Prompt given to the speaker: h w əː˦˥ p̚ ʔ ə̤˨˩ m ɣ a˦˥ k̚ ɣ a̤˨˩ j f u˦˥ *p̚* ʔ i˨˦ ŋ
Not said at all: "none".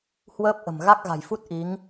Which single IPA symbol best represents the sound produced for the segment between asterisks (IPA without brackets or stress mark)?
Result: t̚